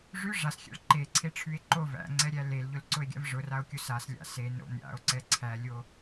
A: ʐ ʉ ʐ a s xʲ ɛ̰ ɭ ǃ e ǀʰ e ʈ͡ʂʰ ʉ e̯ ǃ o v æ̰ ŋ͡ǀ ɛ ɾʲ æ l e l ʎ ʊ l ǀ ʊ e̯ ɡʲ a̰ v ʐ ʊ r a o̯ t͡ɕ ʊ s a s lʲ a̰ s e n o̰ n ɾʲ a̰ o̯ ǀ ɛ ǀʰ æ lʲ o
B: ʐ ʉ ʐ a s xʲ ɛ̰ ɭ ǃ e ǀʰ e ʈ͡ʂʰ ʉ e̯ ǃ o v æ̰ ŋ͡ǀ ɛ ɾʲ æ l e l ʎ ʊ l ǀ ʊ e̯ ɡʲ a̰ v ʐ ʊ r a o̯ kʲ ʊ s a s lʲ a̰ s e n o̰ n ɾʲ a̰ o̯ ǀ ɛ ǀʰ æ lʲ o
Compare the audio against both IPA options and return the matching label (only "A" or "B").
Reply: B